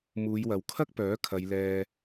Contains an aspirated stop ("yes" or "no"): yes